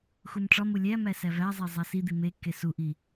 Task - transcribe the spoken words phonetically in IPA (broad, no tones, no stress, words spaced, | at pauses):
xumʈ͡ʂɒmu lʲæmæ sævæzˤe zˤæsid̪i mekːe suʔi